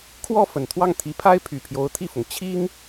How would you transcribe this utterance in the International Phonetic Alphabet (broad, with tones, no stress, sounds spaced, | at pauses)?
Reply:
kʰ w ɔ˥˩ f ə˨˩ n t̪ʰ w ɑ˥˩ ŋ t̪ʰ i˧˥ pʰ a˥ ɪ̯ pʰ y˨˩ pʰ j o˧˥ ʊ̯ t̪ʰ i˥˩ f ʊ˩ ŋ t͡ɕʰ i˥ ŋ